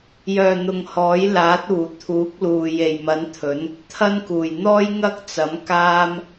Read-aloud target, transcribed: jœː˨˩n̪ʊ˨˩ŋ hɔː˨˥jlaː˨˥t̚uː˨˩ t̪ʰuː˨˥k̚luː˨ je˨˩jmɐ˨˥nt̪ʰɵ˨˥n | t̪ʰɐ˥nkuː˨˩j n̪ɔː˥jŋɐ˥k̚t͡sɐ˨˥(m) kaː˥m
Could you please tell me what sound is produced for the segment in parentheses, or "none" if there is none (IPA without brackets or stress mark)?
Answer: m